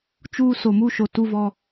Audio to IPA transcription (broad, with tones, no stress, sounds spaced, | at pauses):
t͡ʃ uː˦ s o˨ m u˦ ʃ o˨ t u˦ v ɔ˦